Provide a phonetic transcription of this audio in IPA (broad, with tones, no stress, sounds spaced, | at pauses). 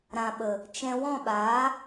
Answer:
ɾ ã˨ ɓ ə˨ | t͡ʃ ɛ̃˧ w ɔ̃˦˨ ɓ aː˨˦